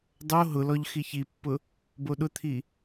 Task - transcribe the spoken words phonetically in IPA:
dˤ o ɦ ʊ l ɔ ʎ x i ç i pː ʊ | b o ɗ ʊ t̪ʰ i

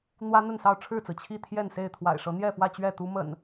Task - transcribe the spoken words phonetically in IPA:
n̪ w ä˦ n̪ ə˥˨ n s ɑ˥˨ ʊ̯ ʈ͡ʂʰ ɻ̩˥˨ t͡s ɹ̩˩ t͡ɕʰ i˥˨ t̪ʰ j ɛ˥˨ n s e˥˨ ɪ̯ t̪ʰ w a̰˨˩ ɪ̯ ʂ ɤ˨˦ n̪ j ɛ˥˨ f w ä˥˨ t͡ɕ ɥ ɛ˥˨ t̪ u˦ m ə̰˨˩ n

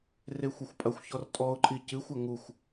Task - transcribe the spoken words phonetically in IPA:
r e xʷ ɛ xʷ pʼ ɐ xʷ ç ɔ r tʼ ɔ ʊ̯ ǃʼ i c ɨ xʷ ɐ ŋ u xʷ

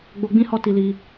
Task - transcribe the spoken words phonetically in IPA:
ɡ͡b o˧ ɡ͡b ĩ˦ h ɔ˦˨ t i˧ l i˧

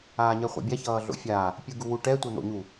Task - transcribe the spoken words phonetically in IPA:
aː ɲ ɛ χʷ a̰ bʲ a ç ʌː ɮ o̰ fʲ aː | pʲ ɯ ɡ u w u ʈ ɛ tʷ ɛ n̪ o̰ ɲ u

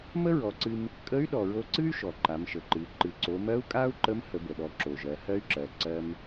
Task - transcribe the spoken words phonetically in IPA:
m ə˥ ɹ ɔ˩˧ ǀ ɨ˧ m | kʼ ə˧˥ y̯ ɗ ɔ˩ ɹ o˧ ǀ ɨ˥ y̯ ʃ ɔ˩ ǃ a˩˧ m ʃ ə˩ ǃ ɨ˩˧ ǃ ɨ˩ ǀ o˩˧ m ɜ˧˥ u̯ kʼ a˥ u̯ ǃ ə˧˥ m h ə˩˧ b ə˩ ɗ ɔ˩˧ ǁ o˩ ʒ ɜ˩˧ h ɜ˥ y̯ ǁ ɜ˩˧ ǀ ɜ˧ m

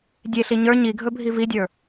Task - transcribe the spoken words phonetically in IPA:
dʲ e ɬ i ɲ ə˞ ɲ i ɡʱ ɵ bʱ i v i dʲ ə˞

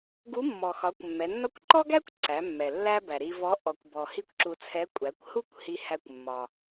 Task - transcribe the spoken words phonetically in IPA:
ɡ u˧˥ mː ɔ˩ x ɒ˩˧ kʷ mː ɛ˩˧ nː ɒ˥ kʷ ǃ ɔ˥ ɡ æ˥ kʷ ǀ æ˩˧ mː ɛ˩ lː æ˥ b æ˩ ɾ i˧ v ɔ˧˥ ʔ ɔ˩ kʷ b ɔ˩ h i˥ kʷ ǁ u˧ t͡sʰ ɛ˧˥ kʷʼ æ˩˧ kʷ h u˥ kʷ h i˧ h æ˧ kʷ mː ɒ˩

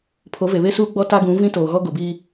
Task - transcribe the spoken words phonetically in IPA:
pʰ o˨˦ v e˨ β e˦ s uː˦ ɡ͡b ɔ˦ t a˦ ɡ ũ˨˦ v ĩ˦ t oː˨ ɣ ɔ˦ ɡ o˨ b iː˦

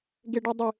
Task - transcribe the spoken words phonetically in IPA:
ɡ e ɖ u dˤ ɪ

